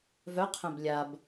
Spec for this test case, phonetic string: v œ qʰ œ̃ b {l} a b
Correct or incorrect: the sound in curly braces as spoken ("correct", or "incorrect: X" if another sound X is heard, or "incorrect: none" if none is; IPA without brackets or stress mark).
incorrect: lʲ